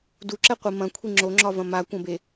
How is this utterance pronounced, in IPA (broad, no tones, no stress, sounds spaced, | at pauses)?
d u ǁ ɛ qʷ i m ɐ̃ kʷʰ i ŋ͡ǁ o ŋ͡ǁ ɒ v ɐ̃ m a kʷ ɐ̃ b e